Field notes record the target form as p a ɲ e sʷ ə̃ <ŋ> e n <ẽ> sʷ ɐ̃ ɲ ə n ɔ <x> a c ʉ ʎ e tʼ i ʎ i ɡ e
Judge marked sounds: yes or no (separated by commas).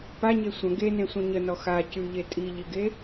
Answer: no, yes, yes